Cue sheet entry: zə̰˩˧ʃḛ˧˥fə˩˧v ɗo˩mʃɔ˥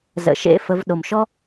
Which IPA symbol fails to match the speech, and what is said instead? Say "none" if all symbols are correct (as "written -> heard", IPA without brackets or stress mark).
none